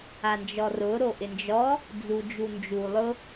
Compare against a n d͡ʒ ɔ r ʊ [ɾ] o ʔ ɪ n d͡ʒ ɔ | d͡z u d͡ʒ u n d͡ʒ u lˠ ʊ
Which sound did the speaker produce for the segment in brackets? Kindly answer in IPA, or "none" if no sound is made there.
ɾ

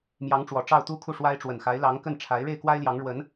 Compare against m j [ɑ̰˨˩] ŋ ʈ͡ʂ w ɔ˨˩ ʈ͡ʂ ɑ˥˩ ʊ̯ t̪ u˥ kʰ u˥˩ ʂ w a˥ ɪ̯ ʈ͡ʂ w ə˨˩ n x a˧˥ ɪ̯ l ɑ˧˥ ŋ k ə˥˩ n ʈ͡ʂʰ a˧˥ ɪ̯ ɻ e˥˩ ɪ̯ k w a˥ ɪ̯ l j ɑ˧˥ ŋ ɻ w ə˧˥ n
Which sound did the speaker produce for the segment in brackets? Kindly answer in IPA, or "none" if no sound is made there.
ɑ˧˥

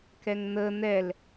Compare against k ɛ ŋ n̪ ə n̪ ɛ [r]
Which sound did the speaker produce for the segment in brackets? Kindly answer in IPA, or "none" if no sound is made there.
l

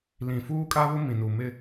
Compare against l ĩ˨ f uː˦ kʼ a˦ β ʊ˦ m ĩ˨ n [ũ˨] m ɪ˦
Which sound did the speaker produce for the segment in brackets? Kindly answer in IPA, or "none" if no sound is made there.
u˨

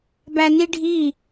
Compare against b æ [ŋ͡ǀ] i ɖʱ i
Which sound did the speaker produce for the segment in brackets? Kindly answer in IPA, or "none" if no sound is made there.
n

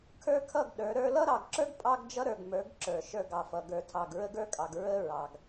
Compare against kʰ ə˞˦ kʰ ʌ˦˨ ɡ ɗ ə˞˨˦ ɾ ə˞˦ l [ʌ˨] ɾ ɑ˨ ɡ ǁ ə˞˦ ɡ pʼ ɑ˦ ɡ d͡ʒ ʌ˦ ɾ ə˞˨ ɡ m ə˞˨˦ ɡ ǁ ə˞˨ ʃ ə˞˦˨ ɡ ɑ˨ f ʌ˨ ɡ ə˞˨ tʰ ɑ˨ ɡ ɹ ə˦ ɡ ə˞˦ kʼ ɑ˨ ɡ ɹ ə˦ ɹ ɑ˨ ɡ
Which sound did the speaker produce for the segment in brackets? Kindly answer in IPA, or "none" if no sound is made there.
ʌ˦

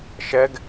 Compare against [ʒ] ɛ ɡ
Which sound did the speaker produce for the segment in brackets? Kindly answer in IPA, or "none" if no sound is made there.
ʃ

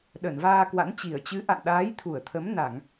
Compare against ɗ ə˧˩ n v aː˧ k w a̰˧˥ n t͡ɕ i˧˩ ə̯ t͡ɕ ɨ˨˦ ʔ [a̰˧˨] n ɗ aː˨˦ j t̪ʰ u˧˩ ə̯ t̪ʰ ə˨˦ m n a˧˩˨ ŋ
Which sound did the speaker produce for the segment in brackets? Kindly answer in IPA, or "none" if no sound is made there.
a̰˧˨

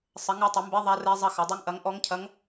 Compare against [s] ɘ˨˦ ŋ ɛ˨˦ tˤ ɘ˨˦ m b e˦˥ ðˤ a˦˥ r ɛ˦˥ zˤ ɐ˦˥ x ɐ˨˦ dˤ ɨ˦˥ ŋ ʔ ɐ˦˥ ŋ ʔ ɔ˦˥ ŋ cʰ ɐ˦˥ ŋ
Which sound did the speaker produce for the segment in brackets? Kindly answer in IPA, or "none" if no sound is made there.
sˤ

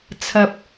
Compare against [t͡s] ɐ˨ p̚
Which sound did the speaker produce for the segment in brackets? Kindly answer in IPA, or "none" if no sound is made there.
t͡sʰ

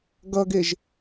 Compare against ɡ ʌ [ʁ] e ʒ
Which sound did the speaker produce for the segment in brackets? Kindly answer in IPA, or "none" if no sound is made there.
ɡ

